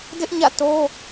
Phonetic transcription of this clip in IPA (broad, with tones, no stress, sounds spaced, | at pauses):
d ɪ˦ ʔ ɲ ä̰˦˨ t o˦